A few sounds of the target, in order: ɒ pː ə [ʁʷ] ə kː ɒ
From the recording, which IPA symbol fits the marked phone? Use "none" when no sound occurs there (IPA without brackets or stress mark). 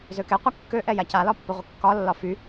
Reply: ʁʷ